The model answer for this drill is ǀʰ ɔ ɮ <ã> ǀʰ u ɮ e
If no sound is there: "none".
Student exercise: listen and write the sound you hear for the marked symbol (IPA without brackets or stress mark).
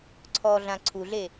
ã